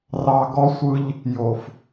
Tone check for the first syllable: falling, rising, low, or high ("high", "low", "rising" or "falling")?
low